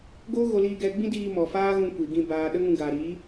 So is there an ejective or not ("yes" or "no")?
no